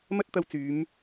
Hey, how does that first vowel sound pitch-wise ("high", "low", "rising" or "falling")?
high